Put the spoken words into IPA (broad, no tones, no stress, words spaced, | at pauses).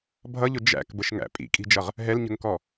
bʱʌʎʊ d͡ʒæ̰kbəʃŋæ̰ pʼḭkʼi̤d͡ʒʌʁ | ɦɛlɲə̤ŋkɔ